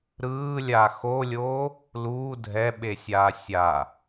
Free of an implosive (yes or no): no